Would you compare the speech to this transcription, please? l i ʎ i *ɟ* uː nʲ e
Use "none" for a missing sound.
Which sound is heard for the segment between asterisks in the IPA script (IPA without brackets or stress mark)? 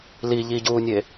ɟ